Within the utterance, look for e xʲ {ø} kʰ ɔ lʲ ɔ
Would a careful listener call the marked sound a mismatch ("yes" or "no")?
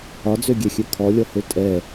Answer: no